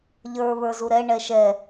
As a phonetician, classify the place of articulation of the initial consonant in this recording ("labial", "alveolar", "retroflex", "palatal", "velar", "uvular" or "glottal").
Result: palatal